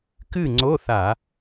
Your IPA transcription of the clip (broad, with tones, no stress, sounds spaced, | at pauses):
k ɨ˥˨ ŋ͡ǀ o˧˥˧ θ a˧˩˧